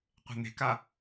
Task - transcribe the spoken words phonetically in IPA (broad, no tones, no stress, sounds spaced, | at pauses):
qʷ e̤ n̪ e̤ k a